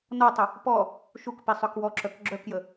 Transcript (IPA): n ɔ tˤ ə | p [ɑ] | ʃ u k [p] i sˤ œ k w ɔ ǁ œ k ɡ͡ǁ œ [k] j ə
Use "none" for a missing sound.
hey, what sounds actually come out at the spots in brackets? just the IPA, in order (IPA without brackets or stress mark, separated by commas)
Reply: ɔ, p, k